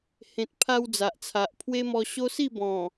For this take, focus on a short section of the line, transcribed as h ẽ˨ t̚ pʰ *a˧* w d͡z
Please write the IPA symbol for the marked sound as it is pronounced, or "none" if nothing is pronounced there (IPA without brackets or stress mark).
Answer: a˧